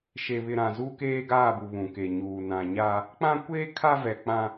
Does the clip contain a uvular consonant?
no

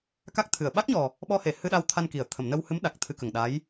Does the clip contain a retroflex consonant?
no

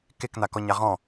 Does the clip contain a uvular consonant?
yes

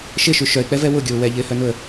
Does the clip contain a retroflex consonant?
no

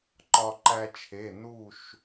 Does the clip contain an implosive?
no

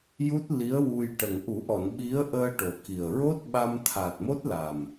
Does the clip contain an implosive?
yes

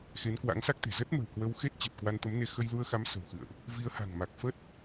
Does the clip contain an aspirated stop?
no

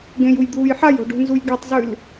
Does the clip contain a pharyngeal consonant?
yes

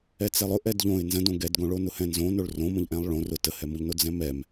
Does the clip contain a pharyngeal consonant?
no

